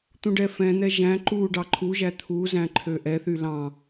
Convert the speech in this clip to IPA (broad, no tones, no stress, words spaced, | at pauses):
t̪ũɖɛfɛ̃n̪ɛ ʒæ̃ ǃu ɖɑǃʰuʒæ t̪ʰuzæ̃ ǃʰøʔɛθy lɑ̃